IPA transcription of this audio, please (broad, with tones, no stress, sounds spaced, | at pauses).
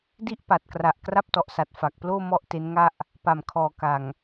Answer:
d i˥˩ ʔ p a˨˩ t̚ k r a˨˩ ʔ k r a˥˩ p̚ t ɔ˨˩ ʔ s a˨˩ t̚ f a˨˩ k̚ p l oː˥˩ m ɔ˥˩ ʔ t e˦˥ n ŋ a˥˩ ʔ | p a˨˩ m kʰ ɔː˨˩ k a˨˩ ŋ